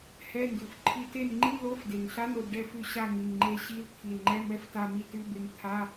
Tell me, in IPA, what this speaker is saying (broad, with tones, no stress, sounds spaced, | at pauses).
h ɛ˧˥˧ n d ʉ˨˩ f ǃʰ i˦˨ t e˦˨ n ŋ͡ǃ i˧˥˧ l o˧˥˧ f d e˨˩ ŋ ɬ a˧˥˧ n o˦˨ d ɖ ɛ˦˨ f ʉ˦˨ ɕ a˦˨ ŋ i˨˩ ŋ ŋ͡ǃ e˦˨ ɕ i˧˥˧ l t̪ʰ i˨˩ l ŋ͡ǃ ɛ˧˥˧ m ɛ˦˨ f t a˦˨ m i˦˨ t ʉ˧˥˧ b e˦˨ ŋ t̪ʰ a˧˥˧